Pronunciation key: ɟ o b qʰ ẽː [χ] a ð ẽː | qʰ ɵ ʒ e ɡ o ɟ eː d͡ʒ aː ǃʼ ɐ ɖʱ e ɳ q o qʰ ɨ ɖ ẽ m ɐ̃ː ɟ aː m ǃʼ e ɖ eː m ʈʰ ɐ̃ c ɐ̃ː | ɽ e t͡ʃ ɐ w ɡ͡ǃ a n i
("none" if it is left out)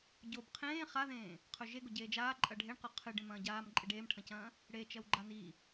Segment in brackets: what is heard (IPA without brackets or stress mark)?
χ